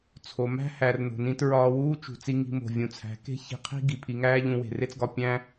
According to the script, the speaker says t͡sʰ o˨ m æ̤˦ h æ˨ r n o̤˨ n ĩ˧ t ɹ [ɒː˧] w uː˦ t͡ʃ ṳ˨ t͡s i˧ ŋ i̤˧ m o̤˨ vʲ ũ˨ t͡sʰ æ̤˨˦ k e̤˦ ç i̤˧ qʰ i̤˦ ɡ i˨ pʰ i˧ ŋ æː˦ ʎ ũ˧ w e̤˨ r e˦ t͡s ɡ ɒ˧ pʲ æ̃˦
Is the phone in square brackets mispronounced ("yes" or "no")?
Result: no